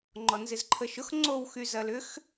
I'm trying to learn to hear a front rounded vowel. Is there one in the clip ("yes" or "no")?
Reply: yes